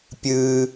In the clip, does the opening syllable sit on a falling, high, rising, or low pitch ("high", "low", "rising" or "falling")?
high